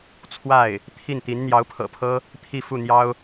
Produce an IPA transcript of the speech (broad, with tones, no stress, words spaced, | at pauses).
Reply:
t͡sʰwa˥˩ɪ̯ | t̪ʰi˥˩nt̪i˧˥n n̪jɑ˧˥ʊ̯pʰɤ̰˨˩pʰɤ˥ | t̪ʰi˥˧ fu˥˩n̪jɑ˥ʊ̯